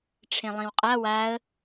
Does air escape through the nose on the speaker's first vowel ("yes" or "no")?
yes